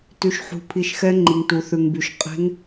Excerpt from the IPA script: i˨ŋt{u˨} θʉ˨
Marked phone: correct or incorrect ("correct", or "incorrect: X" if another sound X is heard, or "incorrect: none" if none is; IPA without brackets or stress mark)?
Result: correct